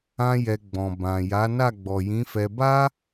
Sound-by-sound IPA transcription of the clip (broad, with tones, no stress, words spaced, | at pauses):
ã˦jɛ˧ ɡ͡bɔ̃˨ bã˨ ja˨˦ na˦˨ɡ͡bɔ˨jĩ˨˦fɛ˧ ba˦